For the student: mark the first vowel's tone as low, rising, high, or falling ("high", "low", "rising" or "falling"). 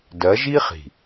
rising